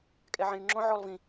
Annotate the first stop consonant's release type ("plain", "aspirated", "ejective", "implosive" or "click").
ejective